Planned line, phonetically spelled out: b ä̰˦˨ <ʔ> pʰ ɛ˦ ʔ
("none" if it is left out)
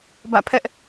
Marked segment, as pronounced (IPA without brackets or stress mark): none